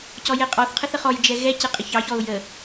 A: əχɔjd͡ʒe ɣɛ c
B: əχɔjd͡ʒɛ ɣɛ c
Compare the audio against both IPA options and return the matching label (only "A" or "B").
B